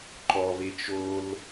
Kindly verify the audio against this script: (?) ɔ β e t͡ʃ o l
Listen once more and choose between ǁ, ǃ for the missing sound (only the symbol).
ǃ